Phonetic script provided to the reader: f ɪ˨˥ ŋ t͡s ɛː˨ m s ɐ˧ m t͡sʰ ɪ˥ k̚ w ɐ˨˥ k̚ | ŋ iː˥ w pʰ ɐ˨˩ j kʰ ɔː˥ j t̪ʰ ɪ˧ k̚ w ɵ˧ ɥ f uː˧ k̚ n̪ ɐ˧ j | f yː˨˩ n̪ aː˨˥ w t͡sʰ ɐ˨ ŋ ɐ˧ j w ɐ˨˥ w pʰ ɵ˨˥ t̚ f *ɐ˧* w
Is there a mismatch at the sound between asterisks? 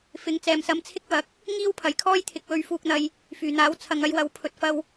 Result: no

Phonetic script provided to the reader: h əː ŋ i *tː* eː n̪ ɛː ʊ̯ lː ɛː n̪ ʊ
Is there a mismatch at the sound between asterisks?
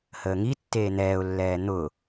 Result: no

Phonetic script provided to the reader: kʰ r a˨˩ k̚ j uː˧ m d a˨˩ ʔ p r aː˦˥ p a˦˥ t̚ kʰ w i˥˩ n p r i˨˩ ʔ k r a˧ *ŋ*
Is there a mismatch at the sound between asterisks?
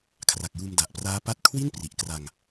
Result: no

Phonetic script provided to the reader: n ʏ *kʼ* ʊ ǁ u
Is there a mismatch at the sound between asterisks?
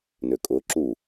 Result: no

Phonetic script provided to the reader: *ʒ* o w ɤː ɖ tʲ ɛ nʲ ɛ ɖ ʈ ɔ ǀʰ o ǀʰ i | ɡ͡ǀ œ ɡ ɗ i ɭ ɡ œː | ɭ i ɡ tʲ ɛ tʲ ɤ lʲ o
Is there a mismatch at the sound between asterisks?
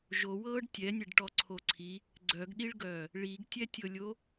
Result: no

